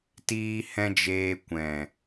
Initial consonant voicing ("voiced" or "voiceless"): voiceless